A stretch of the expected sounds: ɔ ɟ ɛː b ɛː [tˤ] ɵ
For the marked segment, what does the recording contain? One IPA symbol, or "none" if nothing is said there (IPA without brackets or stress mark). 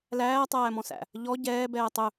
tˤ